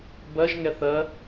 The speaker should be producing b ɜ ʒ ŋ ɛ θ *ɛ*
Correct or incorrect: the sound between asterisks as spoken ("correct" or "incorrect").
incorrect